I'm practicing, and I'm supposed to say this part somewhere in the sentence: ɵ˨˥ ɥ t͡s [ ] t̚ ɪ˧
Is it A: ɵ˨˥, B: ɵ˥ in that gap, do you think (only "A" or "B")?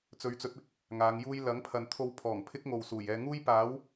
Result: A